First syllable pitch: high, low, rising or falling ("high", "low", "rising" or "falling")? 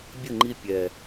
falling